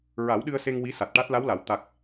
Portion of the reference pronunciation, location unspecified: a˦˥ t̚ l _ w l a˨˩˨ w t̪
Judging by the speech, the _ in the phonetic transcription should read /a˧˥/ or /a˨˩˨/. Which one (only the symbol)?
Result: a˧˥